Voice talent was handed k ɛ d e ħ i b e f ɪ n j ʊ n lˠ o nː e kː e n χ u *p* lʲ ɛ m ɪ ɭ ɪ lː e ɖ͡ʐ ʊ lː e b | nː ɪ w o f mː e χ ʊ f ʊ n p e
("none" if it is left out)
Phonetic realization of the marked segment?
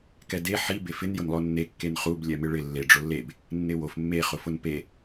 b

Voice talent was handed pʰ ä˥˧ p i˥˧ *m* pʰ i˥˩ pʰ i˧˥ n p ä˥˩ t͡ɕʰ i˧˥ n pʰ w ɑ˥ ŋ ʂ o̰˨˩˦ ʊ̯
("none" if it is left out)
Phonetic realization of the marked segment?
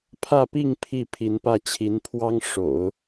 ŋ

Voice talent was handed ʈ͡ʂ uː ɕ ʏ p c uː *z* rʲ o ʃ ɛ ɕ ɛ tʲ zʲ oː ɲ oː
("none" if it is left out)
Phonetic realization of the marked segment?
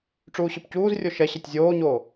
z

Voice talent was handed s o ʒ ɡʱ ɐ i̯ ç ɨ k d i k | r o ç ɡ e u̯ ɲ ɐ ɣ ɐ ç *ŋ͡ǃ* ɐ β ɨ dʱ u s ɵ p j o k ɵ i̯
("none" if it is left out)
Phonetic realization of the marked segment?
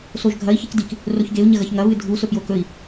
ŋ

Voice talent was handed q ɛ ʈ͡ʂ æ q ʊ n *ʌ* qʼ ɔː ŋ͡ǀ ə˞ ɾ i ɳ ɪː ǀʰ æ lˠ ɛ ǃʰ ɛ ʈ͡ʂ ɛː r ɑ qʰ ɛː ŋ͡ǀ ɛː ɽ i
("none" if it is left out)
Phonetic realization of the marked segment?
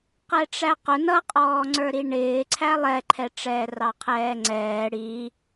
ʌ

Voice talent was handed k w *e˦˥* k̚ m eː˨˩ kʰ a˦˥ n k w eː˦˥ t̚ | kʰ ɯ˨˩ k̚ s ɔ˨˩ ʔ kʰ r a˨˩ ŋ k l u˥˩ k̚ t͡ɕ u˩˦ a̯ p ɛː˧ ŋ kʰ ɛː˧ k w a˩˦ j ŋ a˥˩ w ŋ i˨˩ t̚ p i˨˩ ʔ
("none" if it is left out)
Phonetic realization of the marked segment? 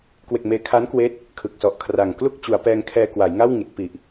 e˨˩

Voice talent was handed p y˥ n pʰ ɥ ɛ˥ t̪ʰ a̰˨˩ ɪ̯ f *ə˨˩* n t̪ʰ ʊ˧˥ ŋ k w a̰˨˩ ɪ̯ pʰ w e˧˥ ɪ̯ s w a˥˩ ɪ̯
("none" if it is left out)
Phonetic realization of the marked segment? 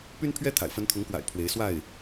ə˧˥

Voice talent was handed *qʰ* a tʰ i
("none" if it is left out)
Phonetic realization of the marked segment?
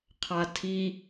qʰ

